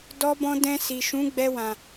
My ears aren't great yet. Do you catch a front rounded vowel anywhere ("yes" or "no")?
no